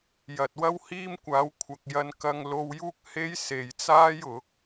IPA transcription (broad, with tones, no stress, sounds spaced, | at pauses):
j ɐ˨ t̚ w ɐ˥ w h iː˥ m kʷ aː˨˧ w kʷʰ ɐ˨ k̚ j ɐ˧ n k ɐ˧ ŋ l o˧ w j uː˥ k̚ h e˥ j s e˨ j t͡s aː˥ j ʊ˨˥ k̚